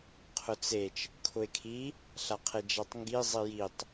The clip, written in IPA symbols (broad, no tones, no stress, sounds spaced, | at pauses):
qʰ ʊ t͡s e t͡ʃ | kʰ ʊ e̯ kʰ i | ɬ a qʰ e d͡ʒ a tˤ ŋ ɡ i zˤ i j i tˤ